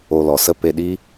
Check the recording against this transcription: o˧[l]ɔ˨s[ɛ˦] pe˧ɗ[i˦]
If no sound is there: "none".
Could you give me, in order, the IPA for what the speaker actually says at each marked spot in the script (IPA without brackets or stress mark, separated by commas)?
l, ə˦, i˦